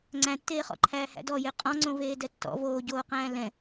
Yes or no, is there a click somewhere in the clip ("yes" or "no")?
yes